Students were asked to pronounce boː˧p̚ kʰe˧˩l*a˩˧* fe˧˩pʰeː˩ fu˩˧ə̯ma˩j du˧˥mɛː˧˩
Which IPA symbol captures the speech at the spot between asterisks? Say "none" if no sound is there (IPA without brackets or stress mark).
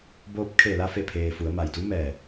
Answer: a˧